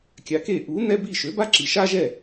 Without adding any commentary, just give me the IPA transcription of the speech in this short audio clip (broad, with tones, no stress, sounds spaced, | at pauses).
kʲ a˩˥ k e˥˩ ʔ u˩˥ n ɛ˥ b i˥˩ ʃ ø˩˥ b a˥ ǁ i˩ ʃ a˥ ʒ ɛ˥˩